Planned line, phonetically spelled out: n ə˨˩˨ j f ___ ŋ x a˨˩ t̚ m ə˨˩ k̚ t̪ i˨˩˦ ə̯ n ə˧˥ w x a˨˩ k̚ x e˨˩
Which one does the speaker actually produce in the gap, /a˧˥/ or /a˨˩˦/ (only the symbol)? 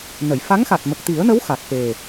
a˧˥